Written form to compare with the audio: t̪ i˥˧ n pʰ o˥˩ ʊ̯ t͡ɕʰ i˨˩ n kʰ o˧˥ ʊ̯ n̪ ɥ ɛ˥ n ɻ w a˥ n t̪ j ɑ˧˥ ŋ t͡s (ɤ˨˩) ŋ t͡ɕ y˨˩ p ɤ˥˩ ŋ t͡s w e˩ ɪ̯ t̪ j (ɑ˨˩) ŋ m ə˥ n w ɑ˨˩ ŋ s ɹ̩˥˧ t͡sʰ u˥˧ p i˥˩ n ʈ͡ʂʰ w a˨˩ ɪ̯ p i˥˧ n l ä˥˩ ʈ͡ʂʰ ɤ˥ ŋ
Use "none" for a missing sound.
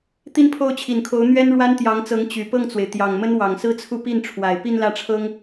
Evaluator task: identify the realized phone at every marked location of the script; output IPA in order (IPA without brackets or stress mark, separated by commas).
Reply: ɤ˧˥, ɑ˨˩